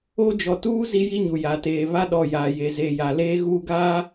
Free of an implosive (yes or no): no